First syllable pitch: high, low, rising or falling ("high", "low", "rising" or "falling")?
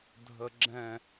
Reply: low